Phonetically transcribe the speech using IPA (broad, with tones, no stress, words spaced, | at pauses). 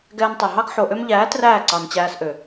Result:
ɡɛː˧ntˤɛ˨ɦɑ˦ɡ ħo˨ʔø˧mʎæː˨˦ træː˦˨ǀɑ˨nt͡ɕæː˧sʔø˨